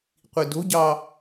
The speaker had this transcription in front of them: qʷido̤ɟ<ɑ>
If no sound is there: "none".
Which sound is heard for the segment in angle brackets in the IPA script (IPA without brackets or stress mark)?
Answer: ɑ